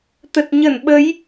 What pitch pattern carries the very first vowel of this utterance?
low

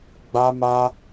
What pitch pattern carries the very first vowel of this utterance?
high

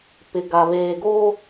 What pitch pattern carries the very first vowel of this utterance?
low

